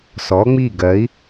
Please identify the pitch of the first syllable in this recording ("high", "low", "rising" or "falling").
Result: rising